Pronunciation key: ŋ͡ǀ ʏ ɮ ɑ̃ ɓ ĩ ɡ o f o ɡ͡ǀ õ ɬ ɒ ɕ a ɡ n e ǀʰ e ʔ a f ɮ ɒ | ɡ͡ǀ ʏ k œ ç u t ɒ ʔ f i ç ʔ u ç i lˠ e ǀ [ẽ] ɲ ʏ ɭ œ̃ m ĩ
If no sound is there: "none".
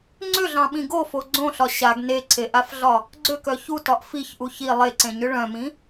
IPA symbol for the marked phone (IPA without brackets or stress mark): ẽ